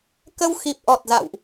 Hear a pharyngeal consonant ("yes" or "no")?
no